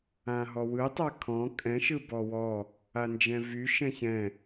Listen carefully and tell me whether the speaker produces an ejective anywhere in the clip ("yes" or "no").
yes